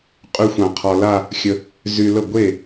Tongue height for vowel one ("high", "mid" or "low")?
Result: high